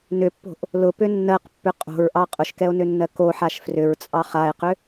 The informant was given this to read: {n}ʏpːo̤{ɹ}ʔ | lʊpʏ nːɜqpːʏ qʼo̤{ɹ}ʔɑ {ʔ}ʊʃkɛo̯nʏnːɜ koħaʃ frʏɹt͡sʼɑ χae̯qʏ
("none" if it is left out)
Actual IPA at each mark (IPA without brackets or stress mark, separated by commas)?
n, none, ɹ, qʼ